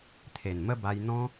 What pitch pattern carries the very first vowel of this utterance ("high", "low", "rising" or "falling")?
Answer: low